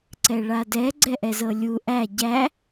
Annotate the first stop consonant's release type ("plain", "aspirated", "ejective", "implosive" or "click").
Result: click